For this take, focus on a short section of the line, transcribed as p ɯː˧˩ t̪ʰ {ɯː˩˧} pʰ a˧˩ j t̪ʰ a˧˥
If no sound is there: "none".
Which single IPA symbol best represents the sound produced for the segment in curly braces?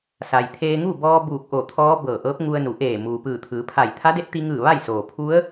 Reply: ɯː˩˧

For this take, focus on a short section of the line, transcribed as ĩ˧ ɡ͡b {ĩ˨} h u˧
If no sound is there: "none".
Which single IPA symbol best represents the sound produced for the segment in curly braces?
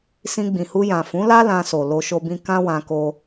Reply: ĩ˨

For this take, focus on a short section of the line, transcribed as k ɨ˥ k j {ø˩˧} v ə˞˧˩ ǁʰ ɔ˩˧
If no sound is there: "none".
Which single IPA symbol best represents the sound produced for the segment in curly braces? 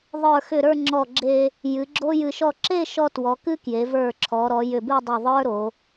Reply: e˩˧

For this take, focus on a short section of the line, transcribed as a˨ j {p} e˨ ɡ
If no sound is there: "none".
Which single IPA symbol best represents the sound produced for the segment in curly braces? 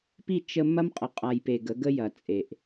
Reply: p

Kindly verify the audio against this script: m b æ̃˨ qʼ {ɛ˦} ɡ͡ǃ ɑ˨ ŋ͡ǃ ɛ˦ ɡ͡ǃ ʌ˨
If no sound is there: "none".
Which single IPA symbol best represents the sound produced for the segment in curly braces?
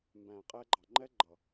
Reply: ɛ˧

